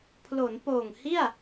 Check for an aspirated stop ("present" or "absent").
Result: present